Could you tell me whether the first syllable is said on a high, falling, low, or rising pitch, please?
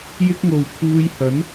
high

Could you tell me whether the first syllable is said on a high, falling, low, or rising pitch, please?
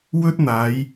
high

